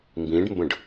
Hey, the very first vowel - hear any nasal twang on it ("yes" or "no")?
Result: yes